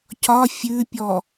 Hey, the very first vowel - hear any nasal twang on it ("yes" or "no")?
no